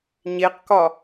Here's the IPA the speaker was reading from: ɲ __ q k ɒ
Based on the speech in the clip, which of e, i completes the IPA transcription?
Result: e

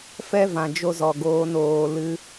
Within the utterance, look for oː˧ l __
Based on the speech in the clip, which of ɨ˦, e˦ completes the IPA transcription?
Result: ɨ˦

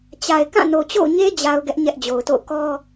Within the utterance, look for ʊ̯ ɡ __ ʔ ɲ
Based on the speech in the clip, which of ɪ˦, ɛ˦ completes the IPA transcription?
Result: ɛ˦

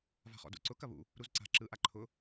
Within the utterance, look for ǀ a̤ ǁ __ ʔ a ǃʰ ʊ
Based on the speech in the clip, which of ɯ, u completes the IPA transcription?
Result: ɯ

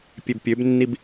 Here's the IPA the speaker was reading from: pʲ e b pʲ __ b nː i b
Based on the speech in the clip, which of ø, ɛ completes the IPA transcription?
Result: ø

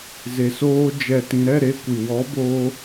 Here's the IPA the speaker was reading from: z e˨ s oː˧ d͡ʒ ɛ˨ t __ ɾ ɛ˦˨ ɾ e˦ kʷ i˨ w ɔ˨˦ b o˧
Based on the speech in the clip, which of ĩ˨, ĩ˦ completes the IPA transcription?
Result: ĩ˨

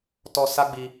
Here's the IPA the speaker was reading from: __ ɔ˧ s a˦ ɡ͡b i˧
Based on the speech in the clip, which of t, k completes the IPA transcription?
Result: t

